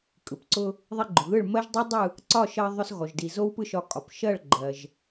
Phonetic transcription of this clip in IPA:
kʼɯ˩pǀʊ˧ | ðˤi˧ɡ͡ǃʊ˩ɣɯ˥˩ɭ mɜ˦˥ʒdˤɯ˦˥ dˤɯ˥˩ | ǀɒ˥˩ʃɜ˧ ðˤʊ˧s ɣɔ˩ʒdi˩ zo˦˥wpɯ˥˩ʃɒ˧ kʼɒ˩p ʃɜ˥˩ɭɡ͡ǃɜ˩ʒ

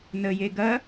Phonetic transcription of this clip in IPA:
nəje ɡɐ

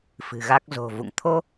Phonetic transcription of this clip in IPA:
fɨ̤˨˩ɣa˦˥k̚zo̤˨˩vṵ˧˨ŋ t̪ʰo˧

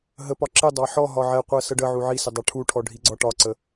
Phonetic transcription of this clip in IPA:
ɦəpɒ ǁɪdˤɑ ħɔ ɦɒʕɛqʷɜ səɖəʕu ʕisɪ dˤɑʈʰuʈʰɔ ɖʱiɡ͡ǀɒʈɒǀə

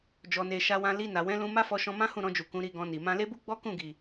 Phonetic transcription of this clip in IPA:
d͡ʒɔ˧ne˧ ʃa˧wã˧ li˧na˨wɛ̃˨˦ lũ˧ ma˦fɔ˧ ʃɔ̃˧mã˦hũ˦˨ ɾɔ̃˧d͡ʒu˨ kũ˨˦ɾi˧ɡɔ̃˧ni˨ mã˧le˦bu˦ ɡ͡bɔ˦kũ˦˨ɡi˨

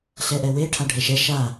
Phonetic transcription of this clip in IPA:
ɬɛʔɛwe ʈʰaɖʱɛʃɛ ʃa

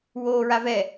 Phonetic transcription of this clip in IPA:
woːɹavɛ

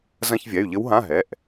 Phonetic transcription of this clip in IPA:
zɐ̃˧˥˧çvʲɛ˩˧˩y̯ʎɘ˧˥wɦã˧˥˧ ɦɛ˩˧˩ʔ

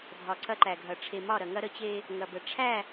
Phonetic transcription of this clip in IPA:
dʱɒ˨ǀɐ˦ǃæ˨ɡʱɐ˨ ʈ͡ʂʰe˨mɒ˦˨ɾɐ˨ŋɐ˦ ɾə˦t͡ɕe˦ | ŋɐ˨bə˨ ʈ͡ʂʰæ˦˨

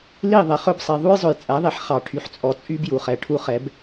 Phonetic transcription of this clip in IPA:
li˦˨ ðˤɛ˨χɵ˦bsˤi˨ ðˤu˦jzˤɵ˨jt͡sʼæ˨˦ ðˤe˨ħ χɑ˨ʈʰy˨ħt͡sʼɔ˨t͡sʼy˦b ju˨χɛ˨ʈʰu˦χɛ˨˦b

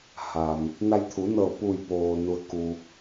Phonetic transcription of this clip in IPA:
ha˩m | na˧jt̪ʰu˩˧nɤː˧˩ pu˧˩jpoː˩ nu˩ə̯ku˩

